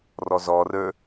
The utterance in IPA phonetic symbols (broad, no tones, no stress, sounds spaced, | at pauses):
r ɔ z ɔ r ə˞